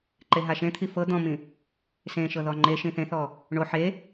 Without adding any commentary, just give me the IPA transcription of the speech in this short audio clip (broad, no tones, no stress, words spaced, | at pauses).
ǃeɦaʃẽt̪ʰi fɤ d̪ɔ̃mĩ | sẽ ʃɤðɔŋ͡ǃeʃĩ θẽθɔ | ɳo ħe